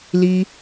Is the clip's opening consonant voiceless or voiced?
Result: voiced